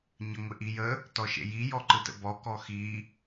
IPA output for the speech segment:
ɲəŋʷɪʔijə | tɔʃḛji jɔǃɯtə̰bɔ kɔxi

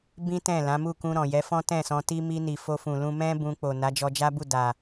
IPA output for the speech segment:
bĩ˦ tɛ̃˦˨lã˨˦mu˦˨ kũ˧ ɾɔ̃˨jɛ˨˦fɔ̃˦ tɛ̃˦˨sɔ̃˧ti˦ mi˧ni˨ fo˧fũ˨lũ˧ mɛ̃˦ bũ˧k͡po˨ na˨˦d͡ʒɔ˧d͡ʒa˦bu˦˨ da˨

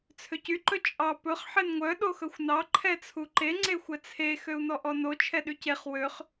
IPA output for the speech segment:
t͡sʰøcy ǃɵt͡ʃʼɑ pɵχ ħenŋʷœ ɗoxɵxʷnɑ ǃʰɛt͡sʰuǃe ŋ͡ǀexʷɛt͡sʰe xøu̯nɔʔɔno t͡ʃʰɛɗyceχ wøχ

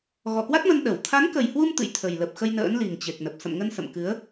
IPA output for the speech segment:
ɣɔ˧˩kwa˦˥t̚mə˧n ɗə˧˩w t̪ʰa˨˦nkə˨˩jhwu˧m t̪ɨ̰˧˨jt̪ʰə˨˩jlə˨˩p̚xə˧j nə̰ː˧˥nli˨˩ŋt͡ɕe˨˩k̚nə˨˩p̚ sə̰˧˨m ŋə˧nsə̰˧˨mkɨ˨˦ə̯

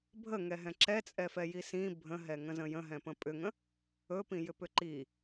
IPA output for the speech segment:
bʱəŋɛɦɛ̃ ǁɛt͡sʼɛfɛji sĩ bʱə̃ɦɛŋə̃zə̃ jə̃ɦɛ̃pə̃ pʼʏŋə̃ | ɵpĩjʏpʏ ǃi

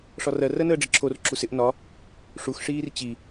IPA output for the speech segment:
ʂɒrɜ rɜnəːɖ͡ʐɪǁʰor ǁusɪʔ nɒ | ʂux ʂiːrt͡ɕi

